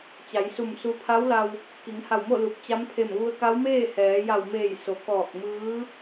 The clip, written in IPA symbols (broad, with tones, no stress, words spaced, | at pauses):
t͡ɕa˩˧jsu˧˩m su˧˥ pʰa˧˥wla˧w | ki˩˧ŋha˧˩wmo˥˨ lu˧˩p̚ t͡ɕa˧˥mpʰe˧˩mʋu˧ə̯ ka˧˥wmeː˥˨hɛː˩˧ ja˧˩wmeː˧˩j so˩˧kɔː˧˩k̚mɯː˧˥